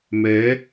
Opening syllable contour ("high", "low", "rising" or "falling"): rising